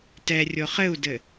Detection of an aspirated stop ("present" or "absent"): absent